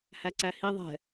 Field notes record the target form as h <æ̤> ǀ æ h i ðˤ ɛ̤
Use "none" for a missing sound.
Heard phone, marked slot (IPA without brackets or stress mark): æ